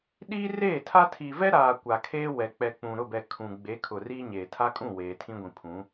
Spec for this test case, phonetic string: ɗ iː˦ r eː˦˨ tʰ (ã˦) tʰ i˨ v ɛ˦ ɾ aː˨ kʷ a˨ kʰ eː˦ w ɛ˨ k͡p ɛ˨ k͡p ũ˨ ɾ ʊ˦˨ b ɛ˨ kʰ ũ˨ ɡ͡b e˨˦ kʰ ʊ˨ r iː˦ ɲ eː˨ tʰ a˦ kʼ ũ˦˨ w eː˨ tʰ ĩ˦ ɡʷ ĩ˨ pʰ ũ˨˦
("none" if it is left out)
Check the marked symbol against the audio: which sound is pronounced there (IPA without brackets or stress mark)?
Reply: a˦